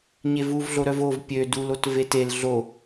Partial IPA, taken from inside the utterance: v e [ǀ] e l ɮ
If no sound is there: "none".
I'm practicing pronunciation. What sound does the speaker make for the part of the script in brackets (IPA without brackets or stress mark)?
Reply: t